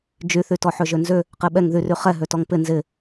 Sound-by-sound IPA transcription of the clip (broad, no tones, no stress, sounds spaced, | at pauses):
d͡ʒ y θ y t ɔ ħ ø ʒ ø n z ʏ | q e ɓ ɛ ŋ ð y r y χ ɛ ɦ ø t ɔ ŋ p ɪ n z ɪ